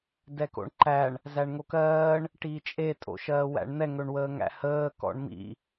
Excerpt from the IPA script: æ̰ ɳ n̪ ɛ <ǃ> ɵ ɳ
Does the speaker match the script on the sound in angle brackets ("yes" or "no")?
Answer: no